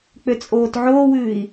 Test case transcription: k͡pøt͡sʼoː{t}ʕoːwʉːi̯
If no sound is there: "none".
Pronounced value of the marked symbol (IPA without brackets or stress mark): t